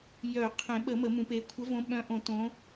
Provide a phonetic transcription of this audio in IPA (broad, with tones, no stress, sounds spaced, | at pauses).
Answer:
j œ˨˩˦ qʰ ẽ˨˩˦ ɓ ə˨˩˦ m ə˨˩˦ m ũ˨˩˦ p e˨˦ kʷʰ ə˨˦ v õ˨˦ ɓ œ̃˨˦ ʔ õ˨˩˦ t õ˨˦